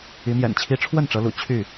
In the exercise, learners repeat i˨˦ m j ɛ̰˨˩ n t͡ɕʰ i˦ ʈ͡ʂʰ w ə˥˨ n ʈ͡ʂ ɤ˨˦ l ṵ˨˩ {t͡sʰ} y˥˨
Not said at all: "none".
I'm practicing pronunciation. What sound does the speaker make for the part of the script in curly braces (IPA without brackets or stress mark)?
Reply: t͡ɕʰ